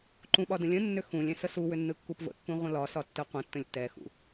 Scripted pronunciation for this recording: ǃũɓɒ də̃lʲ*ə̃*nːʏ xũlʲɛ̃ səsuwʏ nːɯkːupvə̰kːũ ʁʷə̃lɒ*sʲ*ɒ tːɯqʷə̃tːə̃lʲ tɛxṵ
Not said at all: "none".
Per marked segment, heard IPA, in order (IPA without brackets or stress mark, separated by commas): ə̃, s